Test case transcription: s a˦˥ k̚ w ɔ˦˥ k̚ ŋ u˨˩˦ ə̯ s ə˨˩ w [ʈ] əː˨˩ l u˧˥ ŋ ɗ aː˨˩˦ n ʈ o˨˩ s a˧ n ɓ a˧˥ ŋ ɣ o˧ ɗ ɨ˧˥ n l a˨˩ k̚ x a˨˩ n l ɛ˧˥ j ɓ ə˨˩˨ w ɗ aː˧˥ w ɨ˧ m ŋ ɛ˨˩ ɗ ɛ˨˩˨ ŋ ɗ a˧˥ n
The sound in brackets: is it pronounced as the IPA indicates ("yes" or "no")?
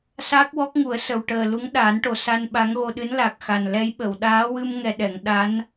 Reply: yes